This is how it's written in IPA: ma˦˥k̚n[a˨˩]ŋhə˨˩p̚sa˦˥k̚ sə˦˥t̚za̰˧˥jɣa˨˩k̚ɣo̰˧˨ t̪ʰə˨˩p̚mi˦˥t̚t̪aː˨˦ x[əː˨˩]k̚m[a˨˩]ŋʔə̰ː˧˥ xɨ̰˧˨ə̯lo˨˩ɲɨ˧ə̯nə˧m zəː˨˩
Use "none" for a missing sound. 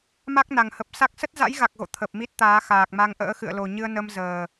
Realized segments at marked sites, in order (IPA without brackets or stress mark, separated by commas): a˨˩, aː˨˩, a˧